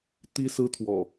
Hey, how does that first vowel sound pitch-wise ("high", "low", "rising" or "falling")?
high